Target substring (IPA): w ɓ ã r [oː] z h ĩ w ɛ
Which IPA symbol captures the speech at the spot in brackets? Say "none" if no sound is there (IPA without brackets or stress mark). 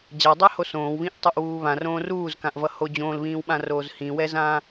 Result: oː